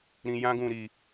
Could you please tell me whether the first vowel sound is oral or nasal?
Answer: nasal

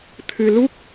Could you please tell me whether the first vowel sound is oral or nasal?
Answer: oral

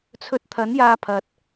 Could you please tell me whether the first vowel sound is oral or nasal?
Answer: oral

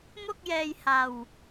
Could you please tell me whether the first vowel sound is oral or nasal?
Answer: oral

